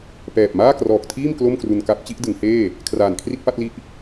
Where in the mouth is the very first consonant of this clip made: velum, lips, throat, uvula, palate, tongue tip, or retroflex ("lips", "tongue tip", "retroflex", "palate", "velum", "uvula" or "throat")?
lips